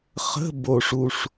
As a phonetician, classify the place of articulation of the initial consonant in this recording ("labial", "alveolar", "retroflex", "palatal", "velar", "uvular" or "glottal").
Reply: uvular